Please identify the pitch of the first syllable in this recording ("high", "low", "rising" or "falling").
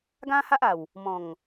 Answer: high